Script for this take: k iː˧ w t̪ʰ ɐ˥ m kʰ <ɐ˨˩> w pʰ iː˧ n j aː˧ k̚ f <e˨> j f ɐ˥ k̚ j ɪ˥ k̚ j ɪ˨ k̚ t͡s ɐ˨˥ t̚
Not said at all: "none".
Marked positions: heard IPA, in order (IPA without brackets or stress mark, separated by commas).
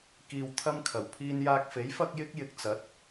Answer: ɐ˨˩, e˨˥